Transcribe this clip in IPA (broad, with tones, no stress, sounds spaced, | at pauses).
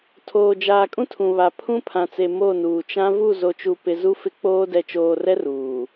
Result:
tʰ oː˨ d͡ʒ aː˨ kʼ ũ˦ tʰ ũ˨ β a˨ pʰ ũ˦ pʰ ã˨ t͡s e˨ m o˦˨ n uː˨ t͡ʃ ã˦ v u˦˨ z o˨ t͡ʃ u˨ p ɪ˨ z u˦ f ɪ˦ k͡p oː˦ d ɛ˨ t͡ʃ oː˨ r ɛ˦ r uː˨